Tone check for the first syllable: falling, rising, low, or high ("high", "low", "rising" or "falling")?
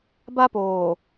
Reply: high